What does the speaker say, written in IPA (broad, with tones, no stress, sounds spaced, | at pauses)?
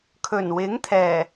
kʰ ɵ˨˩ n w ɪ˨˥ ŋ t̪ʰ ɛː˨˩